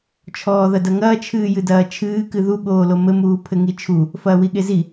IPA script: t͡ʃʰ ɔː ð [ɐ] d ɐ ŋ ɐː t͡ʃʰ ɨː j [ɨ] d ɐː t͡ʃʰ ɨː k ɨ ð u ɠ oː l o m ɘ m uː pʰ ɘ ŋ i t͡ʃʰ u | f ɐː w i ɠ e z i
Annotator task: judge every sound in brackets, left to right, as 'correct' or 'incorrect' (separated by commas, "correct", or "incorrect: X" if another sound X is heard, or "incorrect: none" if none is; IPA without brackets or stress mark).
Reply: correct, correct